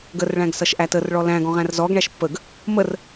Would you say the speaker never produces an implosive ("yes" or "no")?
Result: yes